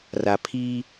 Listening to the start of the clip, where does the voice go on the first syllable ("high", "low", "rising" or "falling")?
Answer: low